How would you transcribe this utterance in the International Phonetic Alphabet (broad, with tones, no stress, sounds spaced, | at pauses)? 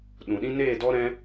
ɗ ũ˨ ɗ ĩ˦ n eː˦˨ d ɔ˦ ɾ ɛ̃˦